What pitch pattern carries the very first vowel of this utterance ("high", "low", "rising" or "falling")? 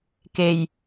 low